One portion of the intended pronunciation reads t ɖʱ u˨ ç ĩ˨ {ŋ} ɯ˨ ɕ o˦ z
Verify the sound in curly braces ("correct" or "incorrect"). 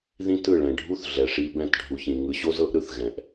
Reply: correct